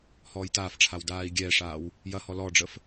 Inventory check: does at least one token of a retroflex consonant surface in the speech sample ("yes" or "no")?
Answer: yes